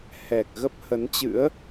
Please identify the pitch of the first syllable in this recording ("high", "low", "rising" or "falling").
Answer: low